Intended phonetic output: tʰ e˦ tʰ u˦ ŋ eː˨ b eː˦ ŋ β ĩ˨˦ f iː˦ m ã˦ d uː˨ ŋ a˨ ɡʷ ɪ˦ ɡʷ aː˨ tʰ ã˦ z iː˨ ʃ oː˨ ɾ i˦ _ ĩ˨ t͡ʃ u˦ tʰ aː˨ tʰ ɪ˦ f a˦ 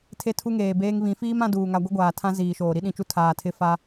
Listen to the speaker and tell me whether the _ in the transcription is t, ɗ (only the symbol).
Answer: ɗ